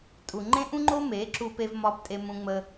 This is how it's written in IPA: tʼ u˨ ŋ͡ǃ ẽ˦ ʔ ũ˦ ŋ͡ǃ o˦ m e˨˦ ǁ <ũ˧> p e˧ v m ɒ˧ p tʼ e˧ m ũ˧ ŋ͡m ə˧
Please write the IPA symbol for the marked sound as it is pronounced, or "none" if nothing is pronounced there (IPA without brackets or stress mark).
u˧